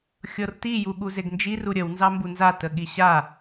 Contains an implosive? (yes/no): yes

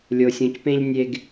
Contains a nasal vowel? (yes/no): yes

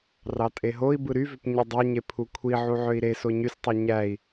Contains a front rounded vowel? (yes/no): yes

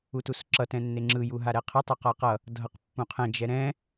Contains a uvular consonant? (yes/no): yes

